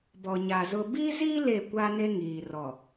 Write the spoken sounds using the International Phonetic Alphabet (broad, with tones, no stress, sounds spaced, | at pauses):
b ɔ˨ ɲ a˨ z ʊ˨ b i˦ z i˦ l e˦˨ kʷ a˦ n e˦ ŋ iː˨ r ɔ˨